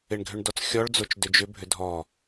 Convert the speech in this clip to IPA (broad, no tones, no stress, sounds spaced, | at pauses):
ɪ ɳ ɡʱ ʏ ɳ d ɔ t͡s xʲ ɔ ɭ d͡z o t͡ʃ d ʏ d͡ʒ ʏ bʱ ʏ dʱ ɔ